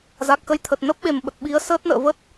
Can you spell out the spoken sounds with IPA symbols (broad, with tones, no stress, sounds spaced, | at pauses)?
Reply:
z a˨˩ k̚ x ə˧ j t̪ʰ ə˨˩ t̚ n ə˦˥ p̚ ɓ e˨˩ m ɓ ə˨˩ t̚ ɓ i˨˦ ə̯ s əː˦˥ t̚ n ə̰ː˧˨ v ə˦˥ t̚